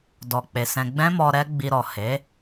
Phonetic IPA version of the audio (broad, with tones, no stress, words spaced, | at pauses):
dɔ˧k͡pe˧ sɛ̃˧ ɡ͡bɛ̃˦mɔ˧ ɾɛ˦ɡ͡bi˧ɾɔ˨ he˨˦